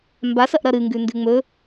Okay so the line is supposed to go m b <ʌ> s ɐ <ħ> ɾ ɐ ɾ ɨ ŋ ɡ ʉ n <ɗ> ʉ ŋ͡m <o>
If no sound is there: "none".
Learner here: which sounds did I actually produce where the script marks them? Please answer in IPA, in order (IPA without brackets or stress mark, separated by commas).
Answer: a, ʔ, d, ɵ